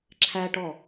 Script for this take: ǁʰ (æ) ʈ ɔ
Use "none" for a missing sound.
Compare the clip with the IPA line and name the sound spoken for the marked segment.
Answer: æ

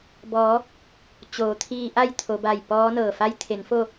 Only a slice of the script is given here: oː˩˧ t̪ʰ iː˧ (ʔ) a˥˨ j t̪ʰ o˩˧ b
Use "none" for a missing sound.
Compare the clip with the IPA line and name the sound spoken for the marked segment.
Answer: ʔ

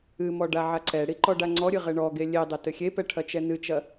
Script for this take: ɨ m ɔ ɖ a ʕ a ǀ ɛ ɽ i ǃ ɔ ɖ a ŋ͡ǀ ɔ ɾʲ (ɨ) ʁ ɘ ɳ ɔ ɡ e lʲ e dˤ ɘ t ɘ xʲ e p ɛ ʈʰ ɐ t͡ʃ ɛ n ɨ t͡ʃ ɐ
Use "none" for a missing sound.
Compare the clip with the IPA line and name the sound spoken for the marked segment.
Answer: ɨ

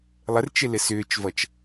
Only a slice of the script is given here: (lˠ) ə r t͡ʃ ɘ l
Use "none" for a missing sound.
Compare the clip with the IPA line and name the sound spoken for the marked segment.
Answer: lˠ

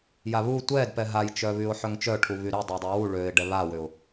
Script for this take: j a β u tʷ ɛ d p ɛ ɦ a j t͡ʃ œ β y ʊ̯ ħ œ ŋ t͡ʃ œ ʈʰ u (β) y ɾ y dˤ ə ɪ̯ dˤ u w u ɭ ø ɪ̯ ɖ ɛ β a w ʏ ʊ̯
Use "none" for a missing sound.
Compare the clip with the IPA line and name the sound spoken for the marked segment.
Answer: β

